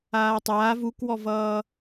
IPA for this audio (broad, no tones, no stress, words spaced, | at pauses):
aːtˤaːv ukwɔvʌː